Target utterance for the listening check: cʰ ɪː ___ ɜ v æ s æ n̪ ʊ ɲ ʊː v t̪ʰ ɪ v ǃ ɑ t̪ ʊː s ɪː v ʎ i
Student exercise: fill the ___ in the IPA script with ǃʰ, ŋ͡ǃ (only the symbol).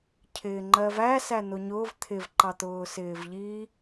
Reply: ŋ͡ǃ